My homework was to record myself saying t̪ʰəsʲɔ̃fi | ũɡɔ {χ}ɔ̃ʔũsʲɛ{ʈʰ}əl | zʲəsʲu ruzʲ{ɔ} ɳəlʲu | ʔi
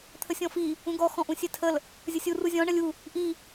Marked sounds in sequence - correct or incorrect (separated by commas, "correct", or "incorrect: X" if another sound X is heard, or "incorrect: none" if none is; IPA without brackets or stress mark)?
incorrect: x, incorrect: tʰ, incorrect: ɔ̃